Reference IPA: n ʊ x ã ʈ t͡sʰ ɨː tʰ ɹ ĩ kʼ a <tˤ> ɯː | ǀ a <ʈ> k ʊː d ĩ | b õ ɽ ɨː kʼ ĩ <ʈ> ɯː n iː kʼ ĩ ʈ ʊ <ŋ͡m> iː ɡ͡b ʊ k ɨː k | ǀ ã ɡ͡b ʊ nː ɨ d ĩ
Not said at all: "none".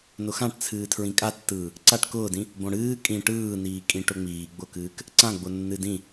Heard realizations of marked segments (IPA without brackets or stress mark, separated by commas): tː, ʈ, ʈ, ŋ͡m